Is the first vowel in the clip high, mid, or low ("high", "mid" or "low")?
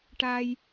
low